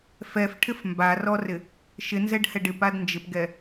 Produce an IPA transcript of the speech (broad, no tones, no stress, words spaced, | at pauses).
fɛfʈʰɪf mbarɔrɪ | ʃɪnzɛɖhɛɖ ɪpad nd͡ʒɪpɡɛ